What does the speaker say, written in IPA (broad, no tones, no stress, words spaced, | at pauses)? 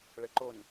ɭəǃon